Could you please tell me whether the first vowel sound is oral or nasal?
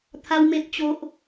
oral